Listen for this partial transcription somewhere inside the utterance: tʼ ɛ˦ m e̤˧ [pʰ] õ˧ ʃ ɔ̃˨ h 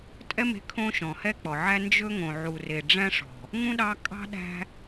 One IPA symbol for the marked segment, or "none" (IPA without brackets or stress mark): kʰ